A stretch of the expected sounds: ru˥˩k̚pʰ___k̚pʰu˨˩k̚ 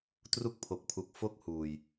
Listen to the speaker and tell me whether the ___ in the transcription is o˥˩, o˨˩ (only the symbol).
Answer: o˨˩